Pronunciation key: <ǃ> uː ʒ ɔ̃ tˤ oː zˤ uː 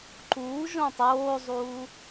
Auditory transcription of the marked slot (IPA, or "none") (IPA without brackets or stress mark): ǃ